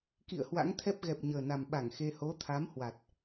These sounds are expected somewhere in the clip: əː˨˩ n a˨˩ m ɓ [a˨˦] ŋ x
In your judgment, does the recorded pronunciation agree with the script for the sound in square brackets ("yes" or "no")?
no